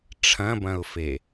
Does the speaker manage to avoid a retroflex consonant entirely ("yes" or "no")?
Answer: no